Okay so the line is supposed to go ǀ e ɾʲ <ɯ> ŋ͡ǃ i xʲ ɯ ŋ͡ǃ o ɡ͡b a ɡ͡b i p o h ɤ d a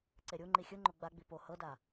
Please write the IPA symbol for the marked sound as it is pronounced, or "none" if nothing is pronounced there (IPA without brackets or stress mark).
u